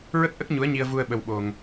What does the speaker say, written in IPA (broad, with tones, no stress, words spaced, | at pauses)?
ɹə˦˥k̚ʔə˦˥k̚ ɲu˧˥ə̯ɲi˧ə̯vu˧ə̯ ɓə˧wɓo˧ŋ